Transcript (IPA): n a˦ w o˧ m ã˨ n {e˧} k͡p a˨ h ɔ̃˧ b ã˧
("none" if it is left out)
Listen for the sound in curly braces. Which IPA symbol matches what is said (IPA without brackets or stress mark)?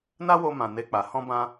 e˧